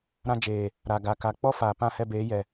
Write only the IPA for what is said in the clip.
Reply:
ɾã˧d͡ʒeː˨ | ɾa˨ ɡa˨ka˨ k͡pɔ˦faː˨ pã˦˨hɛ˧beː˨˦jɛ˨

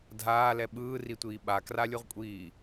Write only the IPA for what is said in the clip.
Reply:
dʱaːlɛ ɓɯːritʷiː ɓakralʲuʁkʷʼiː

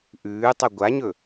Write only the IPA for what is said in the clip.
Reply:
ʔʉːtˤɵ ɡʷaɲɵ

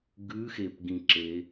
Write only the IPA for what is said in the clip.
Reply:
ɡʉxepɡĩǁe

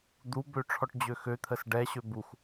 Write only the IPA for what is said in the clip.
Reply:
d̪ubø ʈ͡ʂʰɔʈd͡ʑøxøt̪ʰəs ɖɛɕø bux

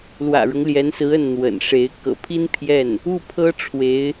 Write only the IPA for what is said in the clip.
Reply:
lwä̰˨˩ɻʊ˦ŋljɛ˧˥nsɹ̩˧˥ ə˥˩nn̪wə̰˨˩nʂe˧˥ɪ̯ kɤ̰˨˩pʰi˥n pʰjɛ˥˩n | u˥˩pʰɤ˥ ʈ͡ʂʰwe˧˥ɪ̯

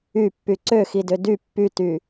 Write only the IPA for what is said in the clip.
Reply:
ypːy ǀøxidø dy pːyty

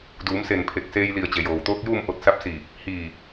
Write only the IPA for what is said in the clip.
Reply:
duː˩˧mse˧˩npʰe˧˩k̚ seː˧jli˧˩ə̯ t͡ɕe˩joː˩wt̪oː˧˥k̚juː˥˨m ʔo˧t̚sa˧˥p̚ siː˧˩p̚ | hiː˧˩

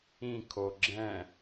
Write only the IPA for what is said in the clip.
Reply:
ĩkʰo ɡ͡ǁɛ̃

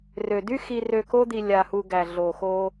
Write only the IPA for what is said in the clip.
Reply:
rø˨ dy˧xi˨rø˨ ko˧d̪i˨ lʲa˨hu˨ ɡæ˨ɮo˨ xo˧

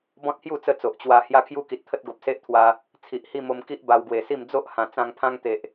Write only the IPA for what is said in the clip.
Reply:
bɔ̃˦t̚hju˥˧ t͡sə˦t͡so˨ʔ t͡ɕwa˧ hja˦kʰju˦ki˨t̚t̪ʰə˦t̚ ɡo˨p̚se˦ʔ t̪ʰwa˧ | t͡sʰi˨ʔhi˥˧mo˧mki˦ʔ ba˧wɡwe˨˩si˥˧m d͡zo˦ʔ hã˨˩t͡sã˧ŋpʰã˦ŋ t̪e˨ʔ

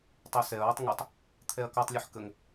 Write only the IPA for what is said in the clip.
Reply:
tˤosɛɐ̯wətˤ ŋotˤ | t̪ʰɛɐ̯kɔtˤlʲɯħ kəŋ

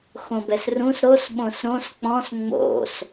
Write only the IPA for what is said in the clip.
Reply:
xõbɛsrũs ɾos ɓõsɾõs k͡pɔ̃s ŋ͡mo̰s

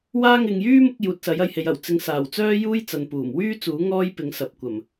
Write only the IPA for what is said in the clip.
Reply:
waː˧ŋɪ˨ŋ jyː˥mʊ˨˥k̚ juː˨t̚sɐ˨˥jɐ˨˧jhe˨˧j ɐ˨˩w t͡sɪ˨˧ŋsaː˨˩wt͡sœː˥juː˥j t͡sɐ˨npuː˨˩mwyː˥t͡suː˨˥ ŋɔː˥jpɪ˨˥ŋsɐ˨p̚ kʷɐ˨˩m

